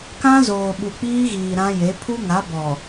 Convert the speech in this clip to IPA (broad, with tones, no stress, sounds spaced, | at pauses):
k ã˦ z oː˨ ɓ u˨ k͡p iː˦ ɣ iː˨ ɾ ã˦ j e˨˦ pʰ u˦ ŋ a˨˦ b ɔ˨